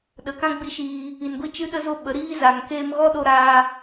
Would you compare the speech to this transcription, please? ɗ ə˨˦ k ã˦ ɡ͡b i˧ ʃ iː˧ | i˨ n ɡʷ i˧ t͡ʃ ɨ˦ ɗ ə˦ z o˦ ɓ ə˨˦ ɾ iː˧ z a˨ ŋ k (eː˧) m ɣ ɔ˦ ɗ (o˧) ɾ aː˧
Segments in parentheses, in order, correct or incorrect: correct, correct

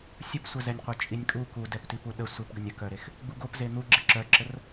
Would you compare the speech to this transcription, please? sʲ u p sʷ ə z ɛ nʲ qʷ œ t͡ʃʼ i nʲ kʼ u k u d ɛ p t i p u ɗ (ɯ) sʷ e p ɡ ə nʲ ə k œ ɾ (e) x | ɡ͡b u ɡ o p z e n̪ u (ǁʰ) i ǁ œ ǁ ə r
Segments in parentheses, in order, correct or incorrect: incorrect: ə, correct, incorrect: ɡ͡ǁ

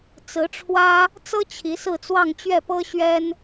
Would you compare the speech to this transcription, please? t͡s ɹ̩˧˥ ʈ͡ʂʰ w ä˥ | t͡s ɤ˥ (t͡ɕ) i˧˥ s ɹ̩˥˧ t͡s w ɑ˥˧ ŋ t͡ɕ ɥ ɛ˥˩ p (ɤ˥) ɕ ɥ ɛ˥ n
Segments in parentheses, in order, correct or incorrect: incorrect: t͡ɕʰ, correct

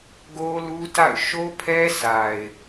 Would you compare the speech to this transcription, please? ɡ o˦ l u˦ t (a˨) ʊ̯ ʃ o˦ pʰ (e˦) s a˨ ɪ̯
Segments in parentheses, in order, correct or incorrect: incorrect: a̰˦˨, incorrect: ɛ˦

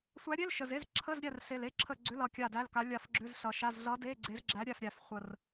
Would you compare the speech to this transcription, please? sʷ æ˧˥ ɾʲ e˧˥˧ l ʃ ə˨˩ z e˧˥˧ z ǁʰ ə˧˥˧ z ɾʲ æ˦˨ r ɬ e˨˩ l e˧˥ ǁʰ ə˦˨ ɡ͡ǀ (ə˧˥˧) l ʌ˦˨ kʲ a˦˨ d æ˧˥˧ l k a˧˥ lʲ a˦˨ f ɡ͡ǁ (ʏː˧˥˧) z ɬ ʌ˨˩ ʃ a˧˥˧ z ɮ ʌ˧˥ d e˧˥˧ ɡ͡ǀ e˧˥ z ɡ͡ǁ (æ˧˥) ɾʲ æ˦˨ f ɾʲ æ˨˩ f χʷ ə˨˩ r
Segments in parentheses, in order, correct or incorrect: incorrect: ʏ˧˥˧, incorrect: ʏ˧˥˧, correct

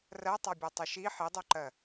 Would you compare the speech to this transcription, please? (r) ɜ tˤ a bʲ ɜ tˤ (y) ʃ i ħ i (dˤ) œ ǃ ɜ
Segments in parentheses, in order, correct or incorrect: correct, incorrect: ʏ, correct

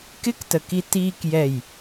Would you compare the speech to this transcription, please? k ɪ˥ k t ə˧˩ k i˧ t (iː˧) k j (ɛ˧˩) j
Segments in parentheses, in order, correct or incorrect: correct, correct

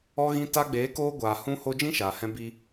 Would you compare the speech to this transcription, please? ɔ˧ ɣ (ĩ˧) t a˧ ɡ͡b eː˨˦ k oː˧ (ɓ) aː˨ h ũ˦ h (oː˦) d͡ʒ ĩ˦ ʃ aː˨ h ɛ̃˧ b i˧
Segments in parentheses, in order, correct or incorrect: correct, incorrect: ɡʷ, incorrect: o˦

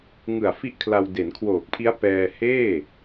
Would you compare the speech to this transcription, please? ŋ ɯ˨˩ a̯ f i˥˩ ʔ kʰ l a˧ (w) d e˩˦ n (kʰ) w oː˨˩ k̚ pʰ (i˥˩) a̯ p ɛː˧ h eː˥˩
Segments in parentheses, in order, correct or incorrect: correct, correct, incorrect: i˦˥

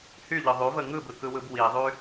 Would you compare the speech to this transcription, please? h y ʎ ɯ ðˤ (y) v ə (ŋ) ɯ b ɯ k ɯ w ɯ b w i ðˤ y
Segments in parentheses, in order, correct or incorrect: correct, correct

